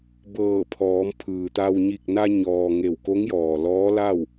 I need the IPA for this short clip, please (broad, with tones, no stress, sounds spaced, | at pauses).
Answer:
b ɤː˧˩ pʰ ɔː˩˧ m pʰ ɯː˩ t̪ a˧ w ɲ i˧˩ k̚ n a˧ ɲ ɔː˩ ŋ e˧˩ w k o˧˥ ŋ j ɔː˩ l ɔː˧˥ l a˥˨ w